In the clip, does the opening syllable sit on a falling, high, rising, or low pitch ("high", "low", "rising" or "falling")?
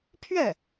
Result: falling